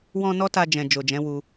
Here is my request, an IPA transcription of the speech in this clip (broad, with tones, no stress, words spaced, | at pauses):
wɔ̃˧ nɔ˦ta˧d͡ʒɛ̃˨ d͡ʒo˨d͡ʒɛ̃˨˦wu˧